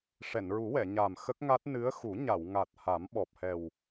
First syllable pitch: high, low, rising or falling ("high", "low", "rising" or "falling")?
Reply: low